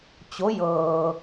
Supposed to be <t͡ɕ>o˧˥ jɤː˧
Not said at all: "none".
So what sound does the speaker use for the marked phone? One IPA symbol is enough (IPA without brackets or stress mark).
t͡ɕ